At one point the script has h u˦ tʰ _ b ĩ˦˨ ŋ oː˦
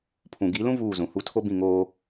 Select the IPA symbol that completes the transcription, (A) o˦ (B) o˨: A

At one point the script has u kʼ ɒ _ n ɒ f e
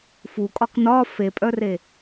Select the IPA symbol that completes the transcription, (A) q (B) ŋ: A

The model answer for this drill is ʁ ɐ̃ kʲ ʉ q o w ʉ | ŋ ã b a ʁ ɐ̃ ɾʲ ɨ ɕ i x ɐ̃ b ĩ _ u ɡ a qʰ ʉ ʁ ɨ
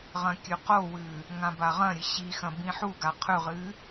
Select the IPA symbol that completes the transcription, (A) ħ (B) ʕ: A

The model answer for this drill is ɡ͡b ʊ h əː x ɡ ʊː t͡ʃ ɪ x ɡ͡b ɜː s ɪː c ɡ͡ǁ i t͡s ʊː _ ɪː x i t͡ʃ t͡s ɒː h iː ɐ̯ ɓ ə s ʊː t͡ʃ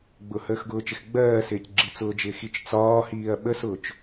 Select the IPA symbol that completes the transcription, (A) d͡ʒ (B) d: A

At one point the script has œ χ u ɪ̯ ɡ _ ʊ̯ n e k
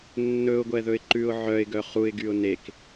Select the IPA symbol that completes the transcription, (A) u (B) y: B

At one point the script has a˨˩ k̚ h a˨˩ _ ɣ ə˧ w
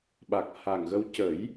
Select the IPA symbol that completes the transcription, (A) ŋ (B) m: A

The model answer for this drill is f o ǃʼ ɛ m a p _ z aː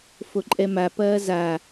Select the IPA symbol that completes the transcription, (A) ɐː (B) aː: A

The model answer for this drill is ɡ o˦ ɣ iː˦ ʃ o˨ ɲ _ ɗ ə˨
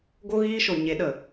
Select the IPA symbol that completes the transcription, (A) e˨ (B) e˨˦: B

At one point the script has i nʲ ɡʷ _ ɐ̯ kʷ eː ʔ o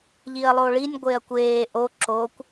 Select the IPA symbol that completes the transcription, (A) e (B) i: A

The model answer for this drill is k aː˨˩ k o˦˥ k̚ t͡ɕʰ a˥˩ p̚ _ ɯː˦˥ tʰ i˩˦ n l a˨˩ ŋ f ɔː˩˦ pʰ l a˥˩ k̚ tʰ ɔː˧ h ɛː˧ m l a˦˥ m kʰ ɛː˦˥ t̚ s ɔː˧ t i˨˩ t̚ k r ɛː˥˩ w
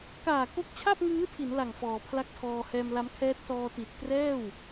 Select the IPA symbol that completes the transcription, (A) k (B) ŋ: B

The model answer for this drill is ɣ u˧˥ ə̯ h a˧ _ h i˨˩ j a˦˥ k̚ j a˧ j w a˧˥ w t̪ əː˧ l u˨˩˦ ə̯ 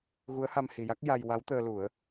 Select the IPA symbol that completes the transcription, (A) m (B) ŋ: A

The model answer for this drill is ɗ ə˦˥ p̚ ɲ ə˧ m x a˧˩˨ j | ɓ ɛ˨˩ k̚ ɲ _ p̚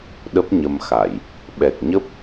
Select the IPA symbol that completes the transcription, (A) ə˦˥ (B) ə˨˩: A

